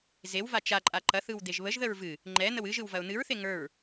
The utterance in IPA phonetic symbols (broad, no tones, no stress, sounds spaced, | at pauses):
z e w v a t͡ʃ a ǃʼ a ǃ ɐ θ ɯ w d̪ e ʒ β ə ʒ ð ə ɹ v ɨ | ŋ͡ǃ ɛ n̪ ə w ɨ ʒ ɯ w v ɐ ʊ̯ n̪ ɨ ɹ θ e ŋ ə˞ ɹ